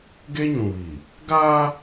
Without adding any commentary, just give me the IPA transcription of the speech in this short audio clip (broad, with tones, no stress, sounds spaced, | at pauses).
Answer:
ɡ e˦ ɲ ũ˨ β iː˨ | ɡ aː˦